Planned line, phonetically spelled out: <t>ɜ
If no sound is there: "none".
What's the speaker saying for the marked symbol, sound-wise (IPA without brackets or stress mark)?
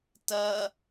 t